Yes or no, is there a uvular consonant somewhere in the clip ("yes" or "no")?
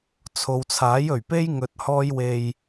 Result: no